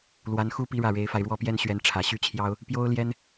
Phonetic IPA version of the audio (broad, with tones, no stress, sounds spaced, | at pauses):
l w a˧˥ n x u˥ p i˥ ɻ ä˥˩ ɻ e˧˥ ɪ̯ f a˧ ɪ̯ ɻ w ɔ˥˩ p j ɛ˥ n ɕ ɥ ɛ˧˥ n ʈ͡ʂʰ ä˨˩ ɕ y˥ t͡ɕʰ j ɑ˥ ʊ̯ | p j o˥ ʊ̯ l j ɛ˥ n